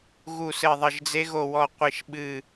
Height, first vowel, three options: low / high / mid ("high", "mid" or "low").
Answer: high